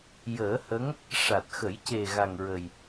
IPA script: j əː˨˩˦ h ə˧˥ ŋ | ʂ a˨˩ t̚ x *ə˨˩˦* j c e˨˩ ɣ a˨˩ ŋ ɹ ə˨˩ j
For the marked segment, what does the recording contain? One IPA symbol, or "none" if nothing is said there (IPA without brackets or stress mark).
ə˨˩˦